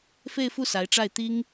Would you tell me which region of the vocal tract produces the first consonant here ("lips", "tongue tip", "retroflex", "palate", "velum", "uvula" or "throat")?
lips